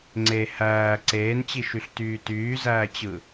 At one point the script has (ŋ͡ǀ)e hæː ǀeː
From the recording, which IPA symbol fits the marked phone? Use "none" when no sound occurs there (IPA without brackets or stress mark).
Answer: ŋ͡ǀ